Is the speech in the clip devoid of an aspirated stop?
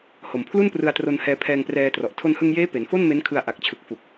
no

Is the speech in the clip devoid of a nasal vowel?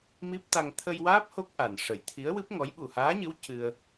yes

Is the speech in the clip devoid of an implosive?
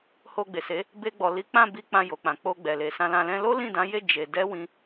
yes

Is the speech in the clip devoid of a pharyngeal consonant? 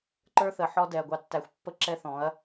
no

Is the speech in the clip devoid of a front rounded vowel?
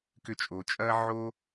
no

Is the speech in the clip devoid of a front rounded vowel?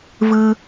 yes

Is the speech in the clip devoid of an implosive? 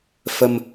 yes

